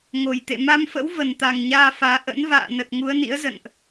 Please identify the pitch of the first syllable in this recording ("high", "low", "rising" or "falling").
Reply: low